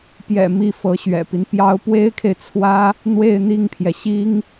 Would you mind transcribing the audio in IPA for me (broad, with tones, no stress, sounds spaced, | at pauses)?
p j ɛ̰˨˩ m i˥˩ f ɤ˧˥ ɕ ɥ ɛ̰˨˩ p i˦ n p j ɑ˧˥ ʊ̯ p w e˥ ɪ̯ kʰ e˨ ɪ̯ t͡sʰ w ä˥ | n̪ w e˥˧ ɪ̯ n̪ i˥˩ ŋ pʰ j ɛ˩ ɕ i˥ ŋ